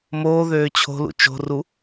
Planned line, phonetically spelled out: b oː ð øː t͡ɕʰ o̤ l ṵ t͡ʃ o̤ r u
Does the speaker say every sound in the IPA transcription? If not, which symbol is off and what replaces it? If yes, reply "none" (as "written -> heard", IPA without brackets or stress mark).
b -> m